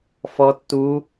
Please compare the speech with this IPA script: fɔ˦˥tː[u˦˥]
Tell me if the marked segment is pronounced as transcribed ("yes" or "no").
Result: yes